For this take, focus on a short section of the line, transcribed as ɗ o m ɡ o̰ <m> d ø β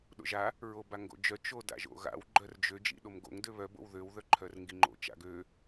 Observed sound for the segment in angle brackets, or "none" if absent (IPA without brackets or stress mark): ŋ